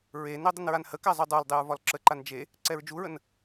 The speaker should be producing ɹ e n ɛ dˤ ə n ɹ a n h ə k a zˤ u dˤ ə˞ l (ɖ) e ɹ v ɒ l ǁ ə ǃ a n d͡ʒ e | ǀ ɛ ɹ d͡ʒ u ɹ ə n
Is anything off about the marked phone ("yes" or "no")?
yes